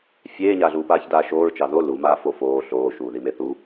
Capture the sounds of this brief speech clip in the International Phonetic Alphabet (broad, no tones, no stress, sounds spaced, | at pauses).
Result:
fʲ eː ɲ aː ɮ uː p aː ç d aː ʃ oː ɹ t͡ʃ ɑ ð o l u m aː f o f oː ɬ oː ʃ uː ð i m e θ u